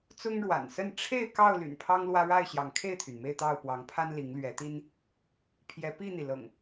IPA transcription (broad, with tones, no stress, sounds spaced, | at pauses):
t͡s ʊ˦ ŋ ɻ w a̰˨˩ n s ə˥˨ n ʈ͡ʂʰ e˥˨ ɪ̯ k ɑ˥˨ ʊ̯ l y̰˨˩ n pʰ ɑ˦ ŋ l w ä˦ ɻ a˥˨ ɪ̯ ɕ j ɑ˨˦ ŋ kʰ e˥˨ ɪ̯ t̪ʰ y˩ n m e˥˨ ɪ̯ t̪ ɑ˥˨ ʊ̯ p w ɑ˨˦ ŋ pʰ a˦ n l i˨˦ ŋ l ɥ ɛ˨˦ t̪ i˦ n | pʰ j ɛ˨˦ p i˥˨ n̪ i˩ l ɤ̰˨˩ ŋ